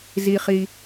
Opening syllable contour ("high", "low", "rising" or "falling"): low